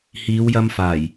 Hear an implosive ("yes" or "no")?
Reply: no